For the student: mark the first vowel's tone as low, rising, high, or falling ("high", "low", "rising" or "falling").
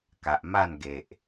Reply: low